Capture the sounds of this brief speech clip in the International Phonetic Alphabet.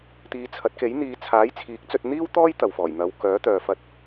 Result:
t̪ iː˨˧ t͡sʰ ɐ˨˥ t̚ k e˨˥ j n̪ iː˨˧ t͡sʰ aː˨˥ j t͡sʰ iː˨˥ k̚ t͡s ɵ˧ t̚ n̪ iː˥ w t̪ ɔː˥ j t̪ ɐ˨ w f ɔː˨˩ j n̪ ɐ˨˧ w k œː˨˥ t̪ œː˨ f ɐ˧ t̚

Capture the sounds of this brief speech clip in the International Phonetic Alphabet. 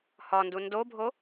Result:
h ɒ n d u n d o bʱ o

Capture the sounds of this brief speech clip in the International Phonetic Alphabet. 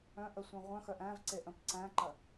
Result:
œ̃ ʔ ə sʷ æ̃ ʁʷ œ̃ x œ ʔ æ̃ v ǀ e ʔ ə̃ p ǀ æ̃ ǃ ɐ

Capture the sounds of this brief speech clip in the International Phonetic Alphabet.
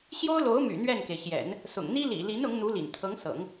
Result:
ɕ j o˥ ʊ̯ l o˧˥ ʊ̯ m y̰˨˩ n̪ ɥ ɛ˥˩ n k e˩ ɪ̯ ɕ j ɛ̰˨˩˦ n | s ʊ̰˨˩ ŋ n̪ i˥ l ḭ˨˩ l i˧˥ n ʊ˧˥ ŋ n̪ u˧˥ l ḭ˨˩ n t̪ʰ ɤ˧˥ ŋ s ɤ̰˨˩˦ ŋ

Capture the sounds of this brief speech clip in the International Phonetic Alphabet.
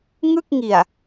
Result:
ŋ ɯ˥˩ k̚ ŋ i˨˩ a̯

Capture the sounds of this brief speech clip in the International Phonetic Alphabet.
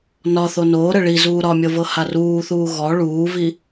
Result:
n ɒ θ o n oː ɾ ə ɭ i z uː ɾ ɒ mʲ ɤ v ɤ h a r uː θ uː ɣ ɔ ɭ uː v i

